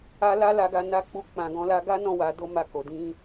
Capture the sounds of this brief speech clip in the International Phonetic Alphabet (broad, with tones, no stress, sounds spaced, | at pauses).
a˧ l a˧ l a˨ ɡ a˨ n a˨˦ k͡p u˧ k͡p ã˨ ɡ ɔ̃˨˦ l a˧ ɡ a˦ n ɔ̃˦˨ w a˨˦ d o˦ m a˦˨ k o˨ d ĩ˧